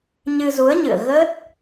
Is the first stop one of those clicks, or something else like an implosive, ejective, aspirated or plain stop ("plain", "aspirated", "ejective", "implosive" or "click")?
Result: plain